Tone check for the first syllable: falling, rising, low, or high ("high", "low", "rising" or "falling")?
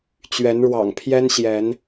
rising